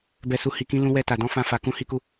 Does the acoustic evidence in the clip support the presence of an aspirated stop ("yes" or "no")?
no